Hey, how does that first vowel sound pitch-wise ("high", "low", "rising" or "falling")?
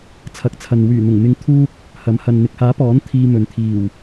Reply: rising